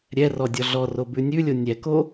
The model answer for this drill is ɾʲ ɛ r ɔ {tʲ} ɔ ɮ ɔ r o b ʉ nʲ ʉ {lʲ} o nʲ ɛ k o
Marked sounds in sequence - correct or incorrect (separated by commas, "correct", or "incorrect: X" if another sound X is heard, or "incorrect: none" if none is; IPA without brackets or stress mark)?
incorrect: dʲ, correct